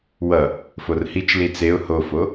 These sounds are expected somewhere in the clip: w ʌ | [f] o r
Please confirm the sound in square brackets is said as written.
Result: yes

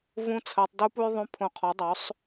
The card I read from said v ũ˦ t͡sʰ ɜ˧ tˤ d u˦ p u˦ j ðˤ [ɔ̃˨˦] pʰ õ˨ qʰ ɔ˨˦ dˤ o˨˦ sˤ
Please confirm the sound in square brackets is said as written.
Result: no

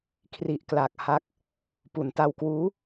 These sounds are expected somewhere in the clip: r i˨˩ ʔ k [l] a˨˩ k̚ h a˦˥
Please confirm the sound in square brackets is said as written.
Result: yes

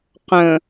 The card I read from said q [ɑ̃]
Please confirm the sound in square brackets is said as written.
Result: no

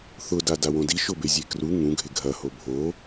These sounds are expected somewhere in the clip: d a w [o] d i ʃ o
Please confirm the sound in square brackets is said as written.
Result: no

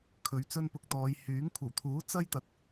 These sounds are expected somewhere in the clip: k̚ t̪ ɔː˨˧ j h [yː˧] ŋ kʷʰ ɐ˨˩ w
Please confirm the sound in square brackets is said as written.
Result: no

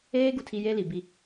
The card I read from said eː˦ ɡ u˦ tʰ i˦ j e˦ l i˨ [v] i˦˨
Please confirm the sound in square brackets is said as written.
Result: no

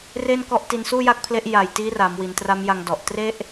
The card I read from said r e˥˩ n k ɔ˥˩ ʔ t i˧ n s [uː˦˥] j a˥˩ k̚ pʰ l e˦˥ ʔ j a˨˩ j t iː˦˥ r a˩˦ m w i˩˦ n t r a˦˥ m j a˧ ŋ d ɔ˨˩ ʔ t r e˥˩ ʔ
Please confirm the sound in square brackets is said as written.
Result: no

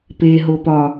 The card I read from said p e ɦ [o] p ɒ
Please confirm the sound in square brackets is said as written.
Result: yes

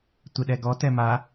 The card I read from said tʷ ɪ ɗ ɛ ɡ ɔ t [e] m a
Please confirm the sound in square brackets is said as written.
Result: no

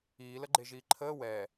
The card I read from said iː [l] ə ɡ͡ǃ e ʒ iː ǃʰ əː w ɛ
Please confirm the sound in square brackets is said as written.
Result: yes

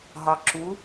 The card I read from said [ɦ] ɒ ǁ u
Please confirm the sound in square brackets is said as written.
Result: yes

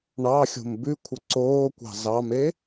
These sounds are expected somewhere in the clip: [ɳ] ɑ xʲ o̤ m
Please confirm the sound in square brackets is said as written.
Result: yes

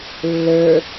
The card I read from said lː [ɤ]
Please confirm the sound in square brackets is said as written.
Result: no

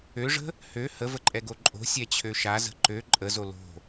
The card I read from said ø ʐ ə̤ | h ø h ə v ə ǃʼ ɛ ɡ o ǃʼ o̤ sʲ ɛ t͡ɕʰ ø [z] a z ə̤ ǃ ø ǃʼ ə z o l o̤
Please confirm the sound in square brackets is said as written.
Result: no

